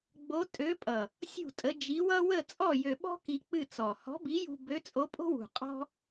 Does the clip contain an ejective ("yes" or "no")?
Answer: yes